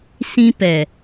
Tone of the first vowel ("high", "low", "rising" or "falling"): high